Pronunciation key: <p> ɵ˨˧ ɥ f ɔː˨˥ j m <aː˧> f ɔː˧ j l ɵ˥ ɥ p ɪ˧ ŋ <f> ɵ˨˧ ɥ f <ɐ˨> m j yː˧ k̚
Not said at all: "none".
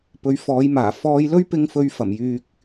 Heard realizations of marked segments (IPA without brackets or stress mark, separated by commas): p, aː˨˩, f, ɐ˨˩